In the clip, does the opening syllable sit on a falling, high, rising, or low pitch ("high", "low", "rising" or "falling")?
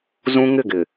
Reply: high